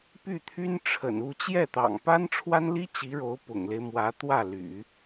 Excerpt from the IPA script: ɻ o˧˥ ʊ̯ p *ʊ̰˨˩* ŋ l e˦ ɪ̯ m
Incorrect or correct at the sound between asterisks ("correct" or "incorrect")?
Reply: correct